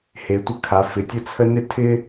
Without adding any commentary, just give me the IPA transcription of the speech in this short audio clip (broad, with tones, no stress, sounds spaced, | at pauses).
h e˩˧ tʷ ə˦ kʰ a˩˧ f ɪ˩˧ tʲ ə˦ t͡sʰ ə˦ n ɪ˦ tʰ ɪ˦